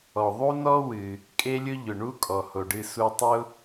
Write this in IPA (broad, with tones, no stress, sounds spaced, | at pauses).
ɔ˩ ðˤ u˥ n ɔ˥ w ɨ˩ | kʼ e˥ lʲ ʊ˥ ʎ ʊ˩ ɳ u˥ kʼ ɔ˩ h o˩ ɖ ɨ˧ s u˧ tˤ ʊ˥